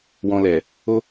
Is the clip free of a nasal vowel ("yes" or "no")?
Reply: no